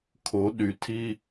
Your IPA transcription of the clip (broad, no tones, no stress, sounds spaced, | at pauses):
kʰ o ɗ y tʰ i